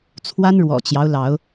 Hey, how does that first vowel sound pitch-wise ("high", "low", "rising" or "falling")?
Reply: high